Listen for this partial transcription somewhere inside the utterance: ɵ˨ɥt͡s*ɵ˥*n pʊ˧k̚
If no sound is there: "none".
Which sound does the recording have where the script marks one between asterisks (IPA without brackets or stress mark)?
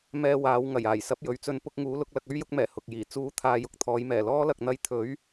ɵ˧